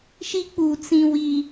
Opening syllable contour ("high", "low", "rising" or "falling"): high